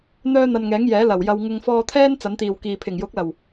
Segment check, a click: absent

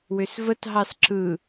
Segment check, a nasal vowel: absent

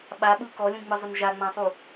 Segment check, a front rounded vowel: absent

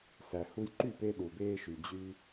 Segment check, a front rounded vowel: present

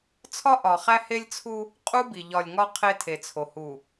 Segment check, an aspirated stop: present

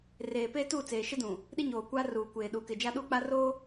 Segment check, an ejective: absent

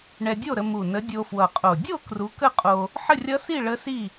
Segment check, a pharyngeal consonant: present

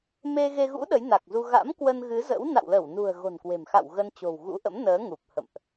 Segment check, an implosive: present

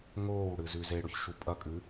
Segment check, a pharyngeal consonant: absent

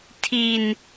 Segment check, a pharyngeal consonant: absent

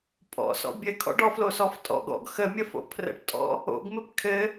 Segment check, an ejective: present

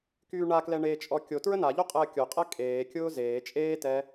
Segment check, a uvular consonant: present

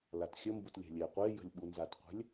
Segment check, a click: absent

